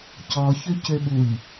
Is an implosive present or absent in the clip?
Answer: present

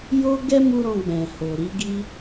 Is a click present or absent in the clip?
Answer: absent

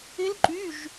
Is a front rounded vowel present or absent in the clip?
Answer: present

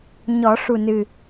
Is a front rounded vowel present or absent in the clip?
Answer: absent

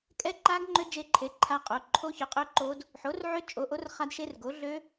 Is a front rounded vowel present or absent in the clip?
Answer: present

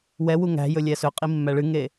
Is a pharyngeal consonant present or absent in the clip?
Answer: absent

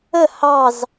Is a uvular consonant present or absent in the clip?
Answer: absent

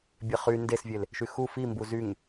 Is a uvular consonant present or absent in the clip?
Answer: present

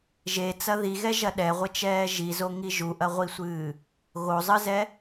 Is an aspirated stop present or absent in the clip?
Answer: absent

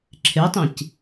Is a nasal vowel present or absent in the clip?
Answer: present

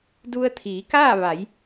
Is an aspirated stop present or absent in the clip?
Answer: present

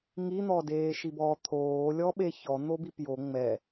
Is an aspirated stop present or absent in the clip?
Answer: present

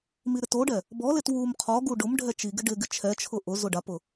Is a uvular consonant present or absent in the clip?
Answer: present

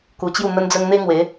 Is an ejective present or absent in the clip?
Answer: absent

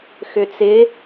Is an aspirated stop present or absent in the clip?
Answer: absent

